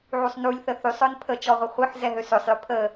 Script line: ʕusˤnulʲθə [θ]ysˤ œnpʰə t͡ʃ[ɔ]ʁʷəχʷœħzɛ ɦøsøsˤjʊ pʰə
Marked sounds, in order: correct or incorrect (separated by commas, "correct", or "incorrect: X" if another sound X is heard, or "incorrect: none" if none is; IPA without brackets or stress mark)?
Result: correct, correct